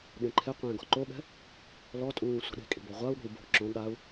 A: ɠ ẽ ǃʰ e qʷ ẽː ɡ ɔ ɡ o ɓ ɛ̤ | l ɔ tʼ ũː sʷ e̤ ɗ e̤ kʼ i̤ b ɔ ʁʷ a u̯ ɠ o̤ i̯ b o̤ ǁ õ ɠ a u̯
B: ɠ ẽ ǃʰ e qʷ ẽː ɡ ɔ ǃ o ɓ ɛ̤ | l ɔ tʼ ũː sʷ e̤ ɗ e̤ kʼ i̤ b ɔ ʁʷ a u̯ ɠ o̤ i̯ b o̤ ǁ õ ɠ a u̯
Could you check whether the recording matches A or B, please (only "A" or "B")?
B